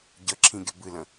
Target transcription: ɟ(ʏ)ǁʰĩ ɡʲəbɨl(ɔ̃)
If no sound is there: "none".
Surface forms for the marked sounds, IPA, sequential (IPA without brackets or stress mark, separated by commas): ə, ə̃